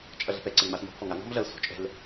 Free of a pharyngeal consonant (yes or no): yes